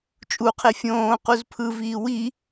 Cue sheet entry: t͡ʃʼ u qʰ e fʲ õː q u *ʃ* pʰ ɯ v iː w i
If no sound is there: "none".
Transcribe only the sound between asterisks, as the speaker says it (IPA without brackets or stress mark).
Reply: z